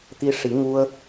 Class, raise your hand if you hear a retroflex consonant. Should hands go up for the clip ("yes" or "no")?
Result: yes